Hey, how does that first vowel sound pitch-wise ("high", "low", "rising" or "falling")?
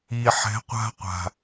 low